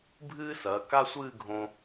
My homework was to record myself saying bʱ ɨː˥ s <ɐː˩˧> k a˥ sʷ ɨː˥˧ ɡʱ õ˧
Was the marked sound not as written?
no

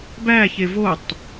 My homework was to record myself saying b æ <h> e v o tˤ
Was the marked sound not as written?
yes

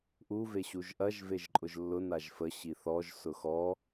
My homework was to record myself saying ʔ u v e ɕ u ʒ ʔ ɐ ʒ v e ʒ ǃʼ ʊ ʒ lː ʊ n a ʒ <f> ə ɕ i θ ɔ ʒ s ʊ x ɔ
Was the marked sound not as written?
no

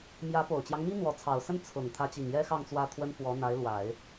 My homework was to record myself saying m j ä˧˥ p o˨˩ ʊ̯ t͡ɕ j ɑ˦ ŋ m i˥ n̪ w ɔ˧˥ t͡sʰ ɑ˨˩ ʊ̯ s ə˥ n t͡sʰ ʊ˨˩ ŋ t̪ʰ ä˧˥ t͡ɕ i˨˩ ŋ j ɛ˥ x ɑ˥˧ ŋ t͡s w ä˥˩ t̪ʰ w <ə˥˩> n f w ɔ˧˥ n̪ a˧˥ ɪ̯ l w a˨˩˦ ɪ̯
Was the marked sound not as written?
yes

